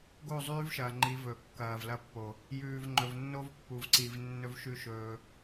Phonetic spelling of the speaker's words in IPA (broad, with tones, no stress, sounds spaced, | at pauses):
ɡ o˦˨ zˤ ʉː˦ v ʃ ɐː˨ ŋ͡ǃ i˨˦ v ɵː˨ kː ɐː˨ v l ɐ˦˨ pː o˨ | j ʉː˨ v ŋ͡ǃ ɵ˨ v nː o˦ v pː u˨ v ǀ i˨ v nː ɵ˦ v ʃ ʉ˦ ʃ ɵː˦